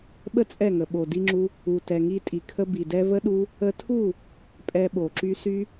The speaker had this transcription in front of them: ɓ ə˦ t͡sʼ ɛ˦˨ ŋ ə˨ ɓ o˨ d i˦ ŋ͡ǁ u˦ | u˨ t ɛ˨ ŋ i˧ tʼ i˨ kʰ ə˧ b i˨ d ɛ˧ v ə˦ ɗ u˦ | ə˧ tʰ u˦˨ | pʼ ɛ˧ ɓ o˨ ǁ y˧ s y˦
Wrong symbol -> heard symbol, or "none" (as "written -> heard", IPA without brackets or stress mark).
none